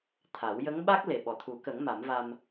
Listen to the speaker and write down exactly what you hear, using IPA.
t̪ʰ a˨˩˦ w j ə˧˥ ŋ ɓ a˦˥ k̚ l e˨˩ ɓ ɔ˨˩ t̪ʰ u˨˩˦ k ə˨˩˦ ŋ m a˨˩˦ m v a˧ m

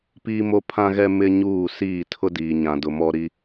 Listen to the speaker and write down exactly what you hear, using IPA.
p iː˦ m o˦ pʰ ã˦ ɣ ɛ˦ m ɪ˦ ɲ uː˦˨ s iː˦˨ tʰ ʊ˦ d iː˨ ɲ ã˨ d ʊ˨ m ɔ˦ ɾ i˦

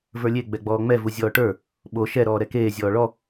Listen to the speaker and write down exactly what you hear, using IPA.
v ə˞ lʲ e ɡ͡b ɛ ɡ͡b ɔː ŋ͡m ɛ v u zʲ ɔː ʈ ə˞ | ɓ o ʃ ɛ ɾ ɔː ɾ ɛ k eː zʲ ɔː ɭ ɔ

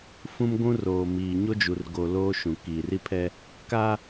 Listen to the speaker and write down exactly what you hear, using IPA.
f ũ˦ m ɡʷ ũ˦ r oː˨ m iː˨ ɲ o˦ d͡ʒ u˨ r ɡ o˨ l oː˦ ʃ ũ˨ k iː˨ r i˦ pʰ ɛ˦ | k a˦

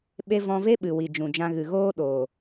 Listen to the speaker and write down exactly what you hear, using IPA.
ɓ e˦ v ɔ̃˧ v e˦ ɓ ɨ˨ w i˨ d͡ʒ ũ˨ d͡ʒ ã˧ ɣ ɨ˨ ɣ oː˦ ɗ oː˨

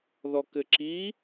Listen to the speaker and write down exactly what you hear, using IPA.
ð ɔ k ɘ ǁ i

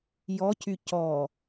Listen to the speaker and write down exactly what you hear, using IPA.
j ɔ cʰ y c ɔ

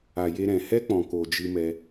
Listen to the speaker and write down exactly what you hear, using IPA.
a˨ j e˧ ɾ ɛ̃˨ h ɛ˦ k͡p ɔ̃˨ k o˨ d͡ʒ ɨ˧ m ɛ˧

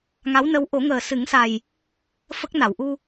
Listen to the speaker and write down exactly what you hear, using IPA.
ŋ a˧˥ w n ə˧˥ w ʔ o˨˩˦ ŋ əː˨˩ s ɨ˨˩˦ ŋ s a˨˩ j | f ə˦˥ k̚ n a˨˩˨ w ʔ u˧

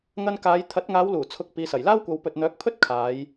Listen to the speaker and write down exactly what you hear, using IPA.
ŋ ɐ˧ n k aː˨˧ j t̪ʰ ɐ˨˥ t̚ ŋ aː˨˧ w l uː˨˩ t͡sʰ ʊ˨ k̚ p iː˨ s ɐ˨˩ j l aː˥ w kʷ ɐ˨˧ w p ɵ˨ t̚ n̪ œː˨˥ k̚ pʰ ɵ˥ t̚ kʰ aː˨˧ j

